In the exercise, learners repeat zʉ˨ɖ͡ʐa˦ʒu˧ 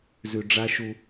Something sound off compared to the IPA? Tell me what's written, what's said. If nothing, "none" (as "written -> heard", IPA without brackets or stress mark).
ʒ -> ʃ